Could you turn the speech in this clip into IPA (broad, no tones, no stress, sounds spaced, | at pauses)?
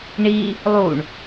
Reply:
ɳ i | lˠ u ɳ